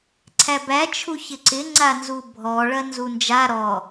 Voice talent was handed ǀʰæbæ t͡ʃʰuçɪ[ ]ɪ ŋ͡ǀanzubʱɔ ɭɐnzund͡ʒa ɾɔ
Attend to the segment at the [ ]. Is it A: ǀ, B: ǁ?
A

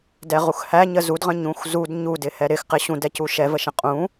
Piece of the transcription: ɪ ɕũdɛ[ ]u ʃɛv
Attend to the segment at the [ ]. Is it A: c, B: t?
A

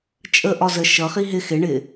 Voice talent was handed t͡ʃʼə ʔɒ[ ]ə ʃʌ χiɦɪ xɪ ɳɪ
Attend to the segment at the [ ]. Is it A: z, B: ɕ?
A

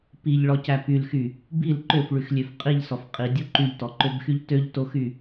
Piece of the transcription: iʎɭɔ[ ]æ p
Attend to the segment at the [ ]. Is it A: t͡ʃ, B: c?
B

